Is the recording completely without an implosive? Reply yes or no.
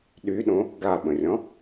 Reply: no